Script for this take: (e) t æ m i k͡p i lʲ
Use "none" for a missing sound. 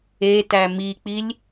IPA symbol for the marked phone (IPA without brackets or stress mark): e